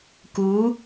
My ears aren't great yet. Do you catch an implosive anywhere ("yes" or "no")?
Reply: no